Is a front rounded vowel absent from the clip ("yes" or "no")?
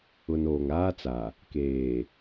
yes